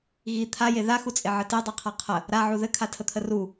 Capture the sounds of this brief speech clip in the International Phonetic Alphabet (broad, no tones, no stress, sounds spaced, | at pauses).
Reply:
ɣ i t̪ʰ a j e ð a x u t͡sʼ e ʕ ɘ t e dˤ ɛ qʰ a qʰ ə | ɾ a ʕ u ð ɘ kʰ a tʰ ə t̪ʰ ə r u